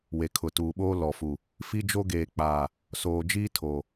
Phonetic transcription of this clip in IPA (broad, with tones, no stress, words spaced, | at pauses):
we˨kʰʊ˨tuː˨ɓoː˦ lɔ˨fu˨ | fi˦d͡ʒo˦ɡeː˨k͡paː˨ | soː˨d͡ʒiː˦ tʰoː˨